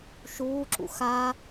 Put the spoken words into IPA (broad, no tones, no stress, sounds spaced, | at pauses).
ʃ uː ǁ ṵ x a